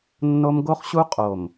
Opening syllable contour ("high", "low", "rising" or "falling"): high